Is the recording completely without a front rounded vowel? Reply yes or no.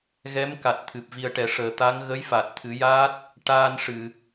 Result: yes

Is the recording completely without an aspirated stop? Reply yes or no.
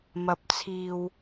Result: no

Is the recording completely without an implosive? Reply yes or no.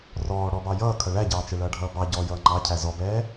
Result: yes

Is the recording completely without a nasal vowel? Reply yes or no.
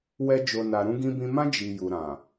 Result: no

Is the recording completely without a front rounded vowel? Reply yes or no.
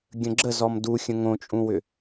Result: no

